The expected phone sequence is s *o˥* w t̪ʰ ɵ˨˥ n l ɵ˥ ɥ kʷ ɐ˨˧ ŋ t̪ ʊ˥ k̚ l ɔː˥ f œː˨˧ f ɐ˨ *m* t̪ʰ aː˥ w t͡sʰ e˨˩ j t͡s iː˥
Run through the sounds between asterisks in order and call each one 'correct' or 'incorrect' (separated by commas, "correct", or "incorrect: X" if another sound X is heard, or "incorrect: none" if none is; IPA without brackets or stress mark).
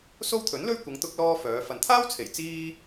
correct, incorrect: n